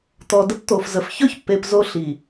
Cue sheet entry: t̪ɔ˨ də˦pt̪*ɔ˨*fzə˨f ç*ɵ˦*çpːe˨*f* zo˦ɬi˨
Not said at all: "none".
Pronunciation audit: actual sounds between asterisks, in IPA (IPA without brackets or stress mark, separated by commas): o˨, ɵ˦, p